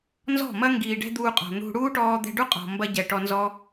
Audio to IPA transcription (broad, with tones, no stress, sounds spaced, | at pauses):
n z ɔ̤˦˨ m ɐ˦ ŋ ɡ iː˨ ɖ ɛ̤˧ d̪ uː˧ qʼ ɔ̤˨ n̪ ṳ˧ ɽ uː˦ ʈ ɔː˧ d̪ ɛ̤˧ ɖ u˦ qʼ ɔ̤˨ m b ɐ˦ ɟ ɛ˨ ʈ ɔ˧ n z ɔ˦